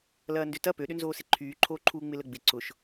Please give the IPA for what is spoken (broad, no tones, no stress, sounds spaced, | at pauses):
l ɐː n d ʏ t ɐ p ø ɗ ʏ n z oː s ɪ ǃʰ yː ǃʰ oː ǃʰ uː ŋ͡m ɪ l ə ɡ͡b ɪ ǀ ʊ ʃ